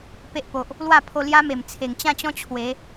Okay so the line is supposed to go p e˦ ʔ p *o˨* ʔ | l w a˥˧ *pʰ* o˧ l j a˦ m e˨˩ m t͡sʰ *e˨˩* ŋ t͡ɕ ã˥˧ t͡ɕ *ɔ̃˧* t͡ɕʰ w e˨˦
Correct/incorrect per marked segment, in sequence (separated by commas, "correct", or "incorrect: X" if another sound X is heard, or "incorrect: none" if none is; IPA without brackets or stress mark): correct, correct, correct, incorrect: ɔ̃˦